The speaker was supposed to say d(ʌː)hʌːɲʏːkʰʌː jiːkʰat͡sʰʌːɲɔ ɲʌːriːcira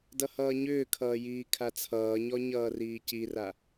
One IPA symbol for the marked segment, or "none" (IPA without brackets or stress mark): ʌ